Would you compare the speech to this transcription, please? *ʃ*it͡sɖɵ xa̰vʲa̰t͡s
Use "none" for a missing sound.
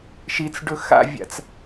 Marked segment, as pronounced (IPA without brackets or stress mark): ʃ